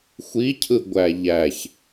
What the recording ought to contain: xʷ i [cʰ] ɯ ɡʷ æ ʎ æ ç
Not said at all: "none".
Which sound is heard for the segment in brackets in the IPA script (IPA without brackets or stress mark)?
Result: cʰ